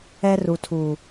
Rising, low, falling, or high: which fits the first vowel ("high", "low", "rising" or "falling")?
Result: high